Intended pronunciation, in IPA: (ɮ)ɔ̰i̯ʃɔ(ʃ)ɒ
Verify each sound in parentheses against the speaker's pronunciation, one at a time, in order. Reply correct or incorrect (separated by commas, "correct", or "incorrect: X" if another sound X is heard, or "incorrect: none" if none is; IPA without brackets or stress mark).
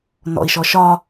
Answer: incorrect: n, correct